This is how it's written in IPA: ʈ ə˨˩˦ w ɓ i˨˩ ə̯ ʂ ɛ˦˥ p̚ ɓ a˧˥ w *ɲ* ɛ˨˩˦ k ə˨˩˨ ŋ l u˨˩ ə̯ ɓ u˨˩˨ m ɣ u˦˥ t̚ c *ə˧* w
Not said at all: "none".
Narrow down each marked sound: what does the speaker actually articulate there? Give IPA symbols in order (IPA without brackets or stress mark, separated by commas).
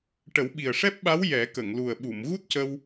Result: j, ə˧